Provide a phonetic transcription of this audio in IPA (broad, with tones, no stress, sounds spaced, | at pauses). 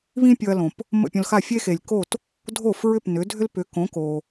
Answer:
β ĩ˥ pʲ ɤ˧ ɐ̯ l õ˩ p | m ə̰˥˩ pʲ õ˧ l x a˥˩ fʲ e˥ x e˩ lʲ k o˥˩ t | dʱ o˥˩ f ɹ ʏ˥˩ p n ʏ˩˥ dʱ ʏ˥ l p ʏ˩˥ k õ˩˥ k o˩